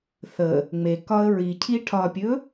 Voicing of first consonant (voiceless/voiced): voiceless